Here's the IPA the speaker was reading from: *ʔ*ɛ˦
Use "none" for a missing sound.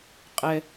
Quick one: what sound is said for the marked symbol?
qʼ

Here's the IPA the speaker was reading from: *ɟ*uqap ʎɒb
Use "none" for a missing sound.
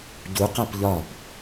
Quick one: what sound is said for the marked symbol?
ɟ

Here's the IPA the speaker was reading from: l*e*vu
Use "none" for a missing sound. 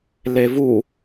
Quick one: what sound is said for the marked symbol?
e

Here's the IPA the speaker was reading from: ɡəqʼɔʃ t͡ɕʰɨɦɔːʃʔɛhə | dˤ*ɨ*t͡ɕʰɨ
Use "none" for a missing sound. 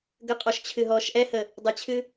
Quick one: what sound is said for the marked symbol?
ə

